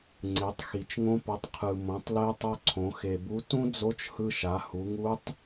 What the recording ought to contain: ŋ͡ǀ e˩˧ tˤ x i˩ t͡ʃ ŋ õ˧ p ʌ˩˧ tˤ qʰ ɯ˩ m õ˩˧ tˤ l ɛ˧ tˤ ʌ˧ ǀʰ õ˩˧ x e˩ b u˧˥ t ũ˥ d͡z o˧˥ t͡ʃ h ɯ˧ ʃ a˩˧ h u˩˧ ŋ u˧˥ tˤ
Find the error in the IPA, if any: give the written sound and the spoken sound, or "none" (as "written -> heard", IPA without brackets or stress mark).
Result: none